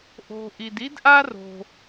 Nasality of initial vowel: oral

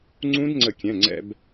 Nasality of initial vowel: nasal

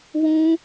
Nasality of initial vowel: nasal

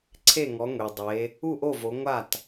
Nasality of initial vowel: oral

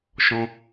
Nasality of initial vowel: nasal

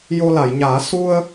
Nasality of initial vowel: oral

